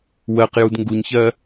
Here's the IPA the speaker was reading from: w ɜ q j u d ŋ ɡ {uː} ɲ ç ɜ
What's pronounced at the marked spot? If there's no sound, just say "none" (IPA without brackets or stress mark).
u